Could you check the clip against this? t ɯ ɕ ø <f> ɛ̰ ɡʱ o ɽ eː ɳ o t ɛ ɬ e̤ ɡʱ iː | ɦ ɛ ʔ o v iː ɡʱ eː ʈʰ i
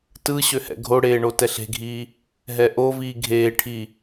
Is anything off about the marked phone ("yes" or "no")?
yes